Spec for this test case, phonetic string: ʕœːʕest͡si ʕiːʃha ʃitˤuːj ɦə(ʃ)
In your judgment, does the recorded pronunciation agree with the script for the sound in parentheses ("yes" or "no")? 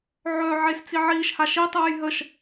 yes